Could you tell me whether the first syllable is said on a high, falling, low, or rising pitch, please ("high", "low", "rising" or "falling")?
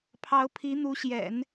rising